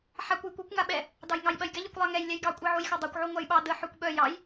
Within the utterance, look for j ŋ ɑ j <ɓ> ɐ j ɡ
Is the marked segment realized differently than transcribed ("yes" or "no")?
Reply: no